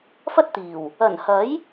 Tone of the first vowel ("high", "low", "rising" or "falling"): high